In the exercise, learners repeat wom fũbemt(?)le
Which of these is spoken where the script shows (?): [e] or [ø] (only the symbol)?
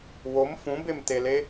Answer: e